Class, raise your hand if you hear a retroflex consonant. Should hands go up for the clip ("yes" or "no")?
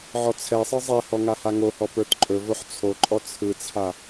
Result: no